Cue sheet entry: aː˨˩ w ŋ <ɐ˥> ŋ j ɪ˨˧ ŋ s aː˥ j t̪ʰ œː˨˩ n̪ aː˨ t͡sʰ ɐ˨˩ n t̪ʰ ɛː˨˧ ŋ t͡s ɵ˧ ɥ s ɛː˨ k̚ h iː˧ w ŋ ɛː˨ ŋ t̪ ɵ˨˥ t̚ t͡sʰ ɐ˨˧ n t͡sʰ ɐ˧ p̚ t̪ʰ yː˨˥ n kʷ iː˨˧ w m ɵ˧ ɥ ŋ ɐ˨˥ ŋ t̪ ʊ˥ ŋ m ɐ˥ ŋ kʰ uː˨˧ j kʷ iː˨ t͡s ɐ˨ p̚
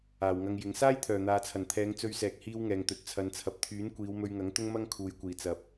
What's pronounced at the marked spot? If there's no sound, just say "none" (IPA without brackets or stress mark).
ɐ˧